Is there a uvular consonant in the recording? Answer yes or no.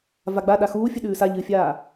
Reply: no